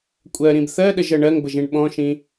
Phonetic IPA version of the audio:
kʷʼ ɜ ɾ ĩ b θ ɜ ɗ ə ʒ ɜ ɳ ɜ ŋ b ə ʒ ĩ ɳ ɓ ɔ̃ ʃ ĩ

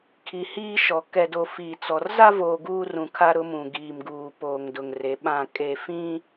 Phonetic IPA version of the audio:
kʰ i˨ h iː˦ ʃ ɔ˨ k ɛ˨ d o˨ f iː˨ t͡s ɔ˨ r z a˦ v oː˨ ɡ uː˦ r ũ˨ kʰ a˦ ɾ ʊ˦ m ũ˨ ɡ iː˨ m ɡ uː˨ p oː˨ ŋ d ʊ˨ ŋ r e˨˦ ɓ ã˦˨ kʼ e˨ f ĩ˦

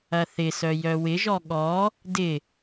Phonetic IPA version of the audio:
ɐ θ ɪ s œ j œ w ɪ ʒ ɔ ɠ ɔ | d ɪ

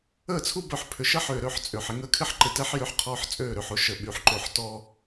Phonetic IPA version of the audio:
əː˦˨ t͡sʰ u˦ b œ˨˦ ħ pʰ ʏ˨ ʃ ɐ˦ ħ ʏː˨ ɾ ø˨ ħ t͡sʼ ʏː˨ ħ ɪ˦ ŋ əː˦ kʰ ɪ˦ ħ ǃ ɪ˨ t ɛ˦ ħ j ʏ˨˦ ħ qʰ ɔː˦ ħ t͡sʼ øː˦˨ ɾ ʏ˨ ħ o˦ ʃ ə˨ ɓ y˨ ħ ǃ o˨ ħ t ɔː˦

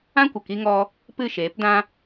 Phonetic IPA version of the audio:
ã˦ kʷ ə˨ k i˧ ŋ ɔ˧ | p ɨ˦˨ ʃ eː˨˦ p d ã˦

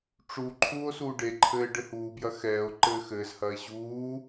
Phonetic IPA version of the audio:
ʈ͡ʂ u ǃʰ uː o̯ s uː ɖ e ǃʰ ɘː ɖ ɘ h uː b j ɐ x ɛː o̯ ǃ ɘː x ɘː z h ɐː e̯ ʑ uː

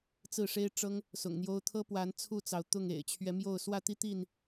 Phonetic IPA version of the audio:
t͡s ɹ̩˥˨ ʂ e˦ ɪ̯ ʈ͡ʂ ɤ˦ ŋ | s ʊ̰˨˩ ŋ n̪ j o˦ ʊ̯ t̪ʰ ɤ˦ p w a˨˦ n t͡sʰ u˥˨ t͡s ɑ˩ ʊ̯ t̪ ʊ˥˨ ŋ ḛ˨˩ ɪ̯ t͡ɕʰ ɥ ɛ˨˦ m j o˥˨ ʊ̯ s w ä˥˨ t̪ i˦ t̪ i˥˨ n

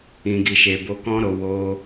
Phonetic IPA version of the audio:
ĩ˨ ɡ i˨ ʃ e˨ b o˧ k ɔ̃˦ ɾ o˧ w o˧

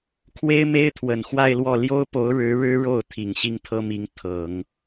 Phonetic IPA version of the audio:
kʰ w e˥ ɪ̯ m e˥ ɪ̯ t̪ʰ w ə˨˩ n x w a˥˧ ɪ̯ l w ɔ˥˩ l j o˥ ʊ̯ p o˧˥ ʊ̯ ɻ ɻ̩˧˥ ɻ ɻ̩˥ ɻ o˥˩ ʊ̯ t̪ʰ i˨˩ ŋ ɕ i˥ ŋ t̪ʰ ɤ˥ m i˧˥ ŋ t̪ʰ ɤ˨˩˦ ŋ

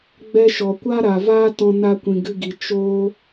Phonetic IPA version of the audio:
ɡ͡b ɛ˧ ʃ ɔ˨ kʷ a˦ ɾ a˨ v a˦ t ɔ̃˧ n a˧ kʷ ĩ˨ ɡ ɨ˧ ɡ i˨ t͡ʃ oː˧

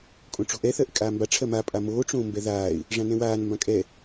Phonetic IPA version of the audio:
kʼ õ ʈ͡ʂ o̤ ʔ ɛ θ ɜ ʔ ɪ kʼ aː m b a ʈ͡ʂʰ ɜ m a pʼ a m oː ʈ͡ʂ õː m b ɛ ð aː ɪ̯ | ʐ ã n ɛ̃ w aː n m b ã kʼ ɛ

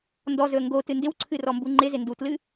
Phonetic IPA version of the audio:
n d ɔ z ɵ ə̯ ŋ ɡ o t ɨ n d ɪ w ǀʰ ɨ r ɔ m b u ŋ͡ǃ ɪ z ɪ n d u t l ɨ

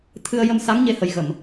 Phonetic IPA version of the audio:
t̪ʰ ɨ˧ ə̯ j ə˧ m s a˧˥ ŋ ɲ e˧ h ə˨˩ j ɣ ə˨˩˨ m

